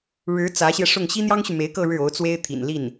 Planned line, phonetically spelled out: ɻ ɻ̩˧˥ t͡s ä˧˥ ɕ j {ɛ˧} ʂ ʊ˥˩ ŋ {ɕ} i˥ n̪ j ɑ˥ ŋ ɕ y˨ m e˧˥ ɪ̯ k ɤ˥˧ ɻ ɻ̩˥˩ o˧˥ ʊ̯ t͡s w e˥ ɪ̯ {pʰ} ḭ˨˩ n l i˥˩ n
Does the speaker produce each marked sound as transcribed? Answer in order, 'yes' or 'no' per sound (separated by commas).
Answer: yes, yes, no